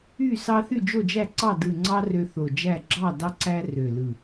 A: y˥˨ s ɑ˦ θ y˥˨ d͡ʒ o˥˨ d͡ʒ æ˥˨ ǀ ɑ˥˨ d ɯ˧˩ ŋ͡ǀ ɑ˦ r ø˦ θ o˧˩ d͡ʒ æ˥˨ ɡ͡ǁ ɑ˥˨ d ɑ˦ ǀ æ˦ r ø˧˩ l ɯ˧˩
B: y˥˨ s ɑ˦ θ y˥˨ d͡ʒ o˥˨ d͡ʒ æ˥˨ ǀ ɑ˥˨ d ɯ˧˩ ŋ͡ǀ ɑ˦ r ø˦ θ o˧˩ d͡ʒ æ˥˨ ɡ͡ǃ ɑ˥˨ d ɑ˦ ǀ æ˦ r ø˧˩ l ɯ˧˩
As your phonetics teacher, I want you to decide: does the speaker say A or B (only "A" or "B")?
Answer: A